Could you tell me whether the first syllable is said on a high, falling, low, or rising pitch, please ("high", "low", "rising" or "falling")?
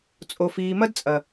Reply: low